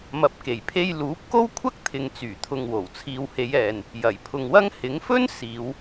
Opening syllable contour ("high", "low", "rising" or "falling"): low